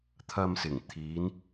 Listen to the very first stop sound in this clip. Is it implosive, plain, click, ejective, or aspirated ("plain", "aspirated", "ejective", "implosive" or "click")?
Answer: aspirated